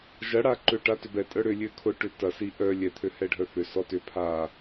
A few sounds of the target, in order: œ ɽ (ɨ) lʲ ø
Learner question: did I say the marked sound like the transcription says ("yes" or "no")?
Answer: no